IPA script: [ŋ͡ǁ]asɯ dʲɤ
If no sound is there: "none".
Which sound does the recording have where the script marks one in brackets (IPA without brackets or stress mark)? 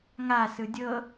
ŋ